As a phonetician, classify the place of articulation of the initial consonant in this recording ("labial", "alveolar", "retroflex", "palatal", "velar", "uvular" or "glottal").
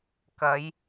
velar